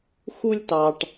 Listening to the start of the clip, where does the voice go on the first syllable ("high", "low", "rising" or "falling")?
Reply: high